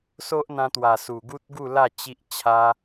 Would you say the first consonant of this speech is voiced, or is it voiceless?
voiceless